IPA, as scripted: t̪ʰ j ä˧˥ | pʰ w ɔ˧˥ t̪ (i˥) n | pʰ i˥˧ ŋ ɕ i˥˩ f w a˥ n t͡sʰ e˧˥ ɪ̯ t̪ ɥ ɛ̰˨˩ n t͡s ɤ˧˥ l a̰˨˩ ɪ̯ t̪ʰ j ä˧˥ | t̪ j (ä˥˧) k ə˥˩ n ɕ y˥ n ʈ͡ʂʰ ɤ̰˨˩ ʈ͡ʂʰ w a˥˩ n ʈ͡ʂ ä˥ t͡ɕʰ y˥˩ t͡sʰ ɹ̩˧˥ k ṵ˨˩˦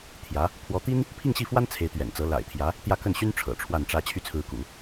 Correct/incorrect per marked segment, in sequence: correct, correct

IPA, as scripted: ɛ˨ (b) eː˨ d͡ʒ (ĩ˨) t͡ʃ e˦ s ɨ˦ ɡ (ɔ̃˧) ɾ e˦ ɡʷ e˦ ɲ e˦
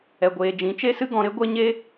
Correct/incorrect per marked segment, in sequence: incorrect, incorrect, correct

